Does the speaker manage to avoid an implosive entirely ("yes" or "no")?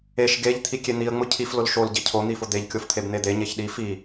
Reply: no